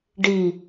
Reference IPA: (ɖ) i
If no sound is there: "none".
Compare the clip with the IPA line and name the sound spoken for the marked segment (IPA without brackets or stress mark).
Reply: ɖ